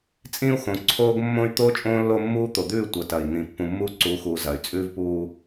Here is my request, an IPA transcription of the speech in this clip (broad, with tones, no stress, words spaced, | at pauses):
t͡sʼĩː˦u̯xõ˨ ǀʰoː˦ɡmːõ˦y̯ t̪oː˦t͡ʃʼõː˦ lːo˦mːuː˦ t̪o˨d̪ʉː˦˨ tʷɐ˨ tɐː˨i̯n̪ĩ˨ pːũ˨mːuː˦ǀuː˨˦xuː˨ zɐ˨y̯ t͡sʼʉː˦vpuː˦